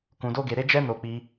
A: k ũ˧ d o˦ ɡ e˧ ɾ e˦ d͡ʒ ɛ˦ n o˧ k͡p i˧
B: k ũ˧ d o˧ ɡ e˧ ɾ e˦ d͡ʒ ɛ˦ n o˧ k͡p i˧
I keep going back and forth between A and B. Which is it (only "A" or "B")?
A